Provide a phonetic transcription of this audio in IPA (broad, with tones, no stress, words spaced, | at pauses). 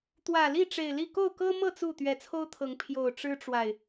t̪wä˨˩li˥˨ ʈ͡ʂe˨˩ɪ̯li˥˨ ko˥˨ʊ̯kɤ˦mɤ˥˨ t͡su˥˨ t̪ɥɛ˨˦t͡sʰo˦ʊ̯t̪ʰɤ˨˦ŋ pʰjo˨˩ʊ̯ ʈ͡ʂɻ̩˦ʈ͡ʂwa˨ɪ̯